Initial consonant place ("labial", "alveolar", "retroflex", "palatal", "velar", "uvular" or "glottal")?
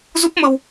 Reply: alveolar